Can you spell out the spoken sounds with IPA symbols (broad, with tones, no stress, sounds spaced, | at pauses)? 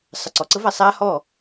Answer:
sˤ ə˨ ǀ ɔ˨ ǀ ə˦ v a˨ sˤ aː˦ h ɔː˦˨